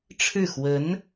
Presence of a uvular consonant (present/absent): absent